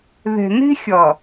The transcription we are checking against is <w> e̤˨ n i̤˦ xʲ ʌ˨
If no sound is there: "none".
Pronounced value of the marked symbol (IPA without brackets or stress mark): ð